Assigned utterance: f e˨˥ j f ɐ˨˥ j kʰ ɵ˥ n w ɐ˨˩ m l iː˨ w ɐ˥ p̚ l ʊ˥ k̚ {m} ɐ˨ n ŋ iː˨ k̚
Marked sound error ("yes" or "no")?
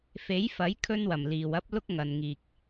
yes